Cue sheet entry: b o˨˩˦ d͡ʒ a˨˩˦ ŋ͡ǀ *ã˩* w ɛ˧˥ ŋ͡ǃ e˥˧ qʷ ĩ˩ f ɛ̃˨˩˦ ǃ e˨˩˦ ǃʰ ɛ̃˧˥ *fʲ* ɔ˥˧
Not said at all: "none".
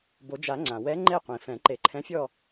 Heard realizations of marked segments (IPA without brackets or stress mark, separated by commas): ã˩, fʲ